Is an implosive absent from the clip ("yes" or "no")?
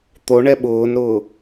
no